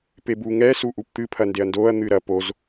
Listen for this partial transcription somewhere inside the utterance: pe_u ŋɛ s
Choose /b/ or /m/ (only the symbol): b